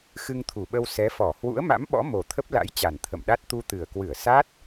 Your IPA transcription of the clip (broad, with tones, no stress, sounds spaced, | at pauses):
x ɨ˧ ŋ t̪ʰ u˨˩ ɓ ə˧ w s ɛ˨˦ f ɔ˧˩ h w ṵ˧˥ ə̯ m a̰˧˥ m ɓ ɔ̰˧˥ m o˨˩ t̪ʰ ə˦˥ p̚ l a̰˧˥ j t͡ɕ a˨˩ n t̪ʰ ə̰˧˨ m ɗ a˦˥ t̚ t̪ u˧ t̪ ɨ˨˩ ə̯ k w ɨ˧˩ ə̯ s a˦˥ t̚